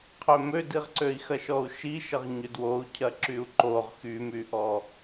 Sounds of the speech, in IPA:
qʰ ø m ø d i ʁ ǀ ø i̯ x ɐ ʃ ɔ u̯ ʃ i ʃ ə ʁ ɲ ʏ d w o u̯ cʰ ɐ ǁ y u̯ ǃ o ʁ x y m y ʔ ɔ

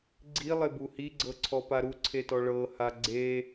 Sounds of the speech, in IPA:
ɡ͡ǀ i lˠ e b u h i ɡ͡ǀ ɤ ǀʰ ɔ p a ɾ u ǀʰ e t ɔ ɭ ɤ h a ɡ͡ǀ e

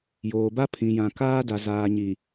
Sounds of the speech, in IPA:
j oː˨ b a˦ pʰ ĩ˨ j ã˨ k aː˦ d a˨ z aː˨ ɲ i˨

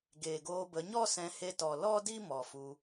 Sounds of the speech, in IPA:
ɡ eː˨ ɡ oː˧ b ə˨˦ ɲ ɔ˦ s ɛ̃˧ h e˧ t ɔ˨ l ɔ˦ d i˦ m ɔ˨ f u˧

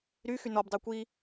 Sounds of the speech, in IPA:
ɾ y x y n ɔ b dˤ æ kʷ i

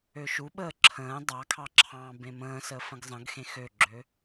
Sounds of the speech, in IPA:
ø ʃ u ɓ əː ǁʰ ə̃ː dˤ ɑ kʰ ɑ ǁʰ ɑ̃ː b ẽ m ə̃ː s əː f ə̃ ɡ zˤ ə̃ ɡ x ẽ x ø ɡ͡ǁ ø

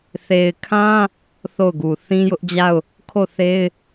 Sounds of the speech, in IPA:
θ e˨ ɪ̯ kʰ ã˦ | θ o˦˨ ʊ̯ ɡ u˨ θ ĩ˦ j ʊ˦ ʔ d͡ʑ a˦˨ ʊ̯ | kʰ o˦˨ θ e˦ ɪ̯

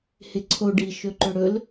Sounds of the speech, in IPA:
h ɪ ǀʰ o ɖ i ʃ ɵ ǃ ɵ ɽ ɵ l

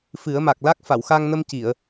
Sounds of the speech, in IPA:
f ɨ˨˩˦ ə̯ m a˨˩ k̚ l a˦˥ k̚ f a˨˩˨ w x a˧ ŋ n ə˧ m c i˨˩˨ ə̯

